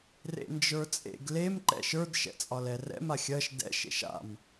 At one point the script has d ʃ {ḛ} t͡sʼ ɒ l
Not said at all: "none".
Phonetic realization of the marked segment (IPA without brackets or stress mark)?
ɛ̰